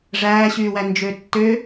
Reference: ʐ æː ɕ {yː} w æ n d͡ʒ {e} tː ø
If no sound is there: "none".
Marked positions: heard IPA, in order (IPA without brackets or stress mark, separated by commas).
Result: yː, ø